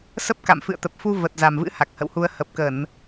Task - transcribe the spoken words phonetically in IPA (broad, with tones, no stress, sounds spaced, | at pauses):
s ə˦˥ p̚ k a̰˧˨ m f ɨ̰˧˨ ə̯ t̪ ə˨˩ p̚ f u˧ v ə˨˩ t̚ z a˨˩ m v ɨ̰˧˥ h a˨˩ k̚ h ə̰˧˨ w h u˧ ə̯ h ə˨˩ p̚ k ə˧˩˨ n